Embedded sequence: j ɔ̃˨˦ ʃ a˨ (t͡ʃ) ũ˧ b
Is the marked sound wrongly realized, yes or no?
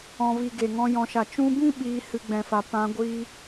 no